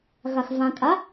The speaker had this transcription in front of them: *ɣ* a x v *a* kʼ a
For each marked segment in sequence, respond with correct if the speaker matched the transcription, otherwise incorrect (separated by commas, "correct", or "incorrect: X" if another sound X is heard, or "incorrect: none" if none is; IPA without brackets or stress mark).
correct, incorrect: ã